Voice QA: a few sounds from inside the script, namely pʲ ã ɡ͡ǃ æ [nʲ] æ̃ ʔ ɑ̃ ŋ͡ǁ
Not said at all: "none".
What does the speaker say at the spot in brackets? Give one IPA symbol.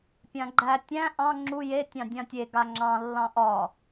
tʲ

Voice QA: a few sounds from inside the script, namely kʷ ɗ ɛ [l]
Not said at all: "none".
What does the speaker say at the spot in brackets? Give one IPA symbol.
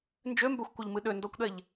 ʎ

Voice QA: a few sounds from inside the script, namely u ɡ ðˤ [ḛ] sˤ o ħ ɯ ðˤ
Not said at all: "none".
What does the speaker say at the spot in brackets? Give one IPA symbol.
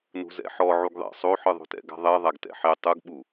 ḛ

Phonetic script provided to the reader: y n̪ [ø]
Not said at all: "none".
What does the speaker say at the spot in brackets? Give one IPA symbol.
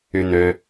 ø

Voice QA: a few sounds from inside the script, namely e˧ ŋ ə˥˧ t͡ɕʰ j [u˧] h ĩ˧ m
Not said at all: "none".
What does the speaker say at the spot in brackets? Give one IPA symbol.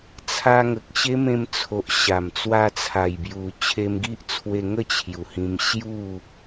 u˨˩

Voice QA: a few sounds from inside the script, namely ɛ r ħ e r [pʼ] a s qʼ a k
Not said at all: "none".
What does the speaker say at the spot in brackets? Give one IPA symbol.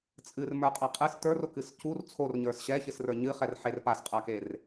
p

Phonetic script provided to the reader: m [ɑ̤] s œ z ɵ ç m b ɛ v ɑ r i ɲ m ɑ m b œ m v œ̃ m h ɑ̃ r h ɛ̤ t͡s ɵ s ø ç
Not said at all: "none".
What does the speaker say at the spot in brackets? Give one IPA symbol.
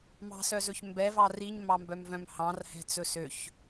ɑ̤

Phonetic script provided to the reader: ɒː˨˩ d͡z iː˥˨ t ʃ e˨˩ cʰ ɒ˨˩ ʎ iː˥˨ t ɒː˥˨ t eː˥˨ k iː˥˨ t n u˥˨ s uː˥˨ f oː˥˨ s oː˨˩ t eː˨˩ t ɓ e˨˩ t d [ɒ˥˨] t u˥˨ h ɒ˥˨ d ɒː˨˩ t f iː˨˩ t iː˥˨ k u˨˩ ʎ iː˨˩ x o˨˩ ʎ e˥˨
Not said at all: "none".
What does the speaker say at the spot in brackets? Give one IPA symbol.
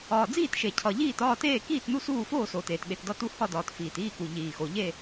ɒ˥˨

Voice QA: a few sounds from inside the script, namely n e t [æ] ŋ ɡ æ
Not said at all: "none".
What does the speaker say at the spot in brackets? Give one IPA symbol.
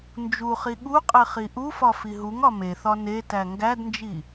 æ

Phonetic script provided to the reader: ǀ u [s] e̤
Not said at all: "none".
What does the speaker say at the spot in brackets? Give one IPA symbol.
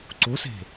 s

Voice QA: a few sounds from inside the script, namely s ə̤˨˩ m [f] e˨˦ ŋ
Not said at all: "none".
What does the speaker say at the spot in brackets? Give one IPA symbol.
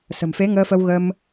f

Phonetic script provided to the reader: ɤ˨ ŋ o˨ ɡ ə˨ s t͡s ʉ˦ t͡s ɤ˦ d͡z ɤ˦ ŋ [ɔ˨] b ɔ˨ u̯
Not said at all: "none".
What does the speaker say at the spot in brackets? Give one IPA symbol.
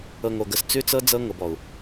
ɤ˨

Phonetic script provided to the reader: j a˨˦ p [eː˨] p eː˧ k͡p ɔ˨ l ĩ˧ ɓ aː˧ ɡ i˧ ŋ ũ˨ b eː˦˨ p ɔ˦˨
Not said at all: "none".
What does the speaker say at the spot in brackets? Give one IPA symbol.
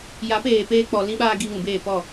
eː˨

